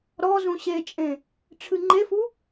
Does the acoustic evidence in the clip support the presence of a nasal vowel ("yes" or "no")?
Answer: yes